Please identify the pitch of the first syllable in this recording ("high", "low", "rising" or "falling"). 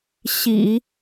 low